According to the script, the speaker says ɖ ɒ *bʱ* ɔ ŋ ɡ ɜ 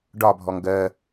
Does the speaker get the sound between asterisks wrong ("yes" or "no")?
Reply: no